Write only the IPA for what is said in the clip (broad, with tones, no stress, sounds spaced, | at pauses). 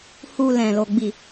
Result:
h u˨ l ɛ̃˨ l o˨ ɡ͡b i˨